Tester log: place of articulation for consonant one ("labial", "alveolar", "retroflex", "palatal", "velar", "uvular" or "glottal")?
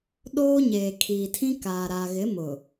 alveolar